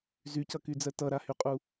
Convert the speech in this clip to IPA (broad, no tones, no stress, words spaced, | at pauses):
zycʌkyd͡zɜ tʌɾahyqʼu